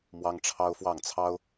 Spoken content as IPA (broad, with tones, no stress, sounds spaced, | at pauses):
m w ɑ˥ ŋ ʈ͡ʂʰ ɑ˥ ʊ̯ f w ɑ˥˩ ŋ t͡sʰ ɑ˥ ʊ̯